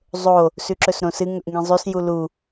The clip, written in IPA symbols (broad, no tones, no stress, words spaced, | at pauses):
zˤo | sʉǁɵsɾõsɨ ŋɵʔŋĩzˤʉs julu